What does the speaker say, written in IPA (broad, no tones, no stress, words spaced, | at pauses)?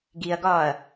ɡiɐ̯ɡɒːɐ̯